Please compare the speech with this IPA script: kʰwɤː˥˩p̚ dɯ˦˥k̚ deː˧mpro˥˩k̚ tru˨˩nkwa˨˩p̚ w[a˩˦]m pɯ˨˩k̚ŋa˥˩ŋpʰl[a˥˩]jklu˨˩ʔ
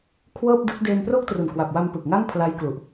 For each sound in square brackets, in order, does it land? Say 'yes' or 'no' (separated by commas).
no, no